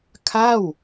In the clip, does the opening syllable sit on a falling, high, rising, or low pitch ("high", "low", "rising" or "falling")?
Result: falling